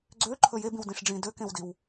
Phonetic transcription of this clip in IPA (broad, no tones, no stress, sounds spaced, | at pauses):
ɡ͡ǀ ø ǃʰ ɵ j e b ĩ w d ĩ ʂ ɖ͡ʐ ĩ d ø k ẽ w d i w